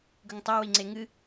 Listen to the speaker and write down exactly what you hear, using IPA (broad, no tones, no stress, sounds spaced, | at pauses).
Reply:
ɡ ɵ ŋ tˤ ɐ w i ŋ͡ǀ e ŋ ɨ